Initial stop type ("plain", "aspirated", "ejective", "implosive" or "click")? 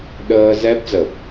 implosive